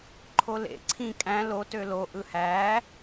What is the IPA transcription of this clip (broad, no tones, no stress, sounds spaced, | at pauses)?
ǃʰ o l ḛ ǀʰ ĩ kʼ æ̃ l o t ø l o ʔ ɯ h æː